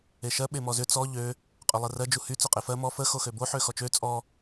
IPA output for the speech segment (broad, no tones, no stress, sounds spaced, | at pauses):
e ʃ ɜ ɓ e m ɔ z ʏ t͡s ɔ ʎ ø | qʼ ø lˠ ɜ r ɜ d͡ʒ u h y t͡s ø qʼ e f ɜ m ɔ f ə x o x ø b o ħ ø x ɔ t͡ʃ ø t͡sʼ ɔ